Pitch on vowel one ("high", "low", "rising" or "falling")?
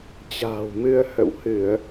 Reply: low